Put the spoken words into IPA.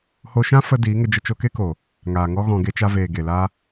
h o˧ ʃ ã˦ f ə˧ d iː˨˦ ŋ ə˧ d͡ʒ ə˧ t͡ʃ o˧ k e˦ k o˨ | ŋ aː˨ ŋ ɔ˦ ɣ ɔ̃˧ ɡ e˦ t͡ʃ a˦ v eː˨ ɡ e˨ l a˦

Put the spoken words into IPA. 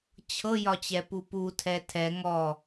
t͡ɕʰ ɤ j ɒ t͡ɕ ɛ p u p u tʰ ɛ tʰ ɛ ŋ ɔ

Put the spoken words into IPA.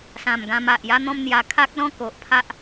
s ã˨˩ m ɡ ã˧ m a˨ ʔ j a˦ n̪ ɔ̃˦ m n̪ j a˧ kʰ a˦ k̚ l ɔ̃˦ k o˨ ʔ pʰ a˦ ʔ

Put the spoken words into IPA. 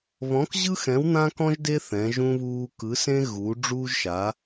β ɔ̃˧˥ k ʑ ɯ˥ x ɛ̃˧˥ w n̪ ã˥ k ɔ̃˥ ʒ d e˥ θ ɛ̃˧˥ ʒ ũ˥ β uː˥ k ɯ˧˥ s ẽ˥ ɣ u˧˥ ɖ͡ʐ uː˥ ʒ ʃ a˧˥

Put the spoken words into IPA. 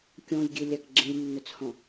kʲ ɔ̃ j ɡʲ e lʲ a k ɡ͡ǁ ẽ lʲ nː ɵ t͡s h ɔ̃

